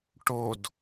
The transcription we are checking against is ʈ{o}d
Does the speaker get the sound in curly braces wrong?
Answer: no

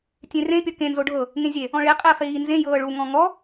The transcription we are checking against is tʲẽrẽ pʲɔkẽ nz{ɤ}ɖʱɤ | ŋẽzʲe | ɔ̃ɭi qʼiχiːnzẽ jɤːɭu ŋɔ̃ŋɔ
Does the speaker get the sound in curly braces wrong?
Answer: yes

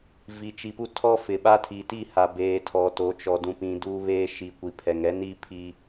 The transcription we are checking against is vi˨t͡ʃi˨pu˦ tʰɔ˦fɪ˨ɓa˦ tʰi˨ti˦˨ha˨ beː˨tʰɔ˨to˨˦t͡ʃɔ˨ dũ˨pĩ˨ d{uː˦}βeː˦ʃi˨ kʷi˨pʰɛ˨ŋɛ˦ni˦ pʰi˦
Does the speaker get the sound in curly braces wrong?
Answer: no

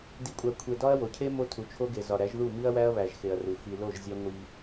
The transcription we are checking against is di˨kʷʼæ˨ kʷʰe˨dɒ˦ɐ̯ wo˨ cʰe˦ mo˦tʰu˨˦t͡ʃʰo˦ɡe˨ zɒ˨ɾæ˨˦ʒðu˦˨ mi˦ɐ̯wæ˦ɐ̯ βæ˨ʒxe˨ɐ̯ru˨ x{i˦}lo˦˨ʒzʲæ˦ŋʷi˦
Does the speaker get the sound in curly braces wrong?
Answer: yes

